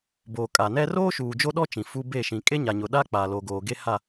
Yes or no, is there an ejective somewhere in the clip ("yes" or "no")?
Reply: yes